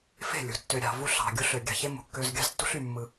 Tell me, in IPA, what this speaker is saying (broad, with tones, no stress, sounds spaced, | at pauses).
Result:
f e̤˦˨ lʲ ṳ˨˦ tː ø˨ ɾʲ ɑ̤˨ v u˦ ɬ ɑ̤˨ ɡʲ u˦ ɬ ø˨ ɡʲ ɑ̤˨ ç e˦ m ṳ˨ kː ø˦ z ɡʲ ɑ̤˦ z tː ṳ˦ ɬ y˨ mː ɯ˦